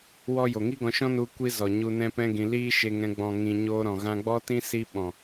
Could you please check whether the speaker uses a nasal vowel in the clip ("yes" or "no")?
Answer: yes